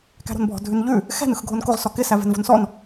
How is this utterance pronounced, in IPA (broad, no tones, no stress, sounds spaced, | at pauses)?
k æ̤ ɾ o̤ n bʱ ɔ̤ dʱ ʉ n ʎ ʉ | x ɛ̤ n ɯ x ɡʱ o n k o ʁ s ɔ k ɪ s æ v ɛ̤ n v o̤ n s ɔ n